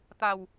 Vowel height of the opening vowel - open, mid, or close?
open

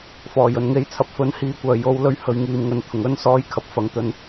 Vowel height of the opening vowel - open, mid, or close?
mid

